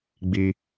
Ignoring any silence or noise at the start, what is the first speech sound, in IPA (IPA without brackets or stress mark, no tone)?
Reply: ɡ͡b